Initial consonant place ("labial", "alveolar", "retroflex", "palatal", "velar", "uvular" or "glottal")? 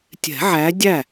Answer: alveolar